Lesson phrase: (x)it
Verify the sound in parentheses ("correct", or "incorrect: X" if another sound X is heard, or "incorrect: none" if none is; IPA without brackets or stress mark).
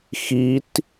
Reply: correct